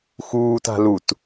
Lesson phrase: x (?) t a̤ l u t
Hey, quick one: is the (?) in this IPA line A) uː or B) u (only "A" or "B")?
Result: A